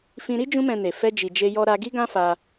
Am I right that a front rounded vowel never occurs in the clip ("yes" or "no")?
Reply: yes